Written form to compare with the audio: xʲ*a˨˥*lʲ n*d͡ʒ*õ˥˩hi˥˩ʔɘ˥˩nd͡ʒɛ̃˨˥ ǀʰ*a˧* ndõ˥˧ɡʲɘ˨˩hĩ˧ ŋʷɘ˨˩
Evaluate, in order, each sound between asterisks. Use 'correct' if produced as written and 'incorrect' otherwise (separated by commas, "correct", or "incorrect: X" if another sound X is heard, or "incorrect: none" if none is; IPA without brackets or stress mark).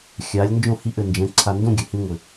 correct, correct, correct